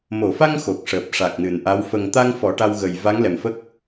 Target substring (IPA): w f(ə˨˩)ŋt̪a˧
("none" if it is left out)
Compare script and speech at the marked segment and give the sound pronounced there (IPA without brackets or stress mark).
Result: ə˨˩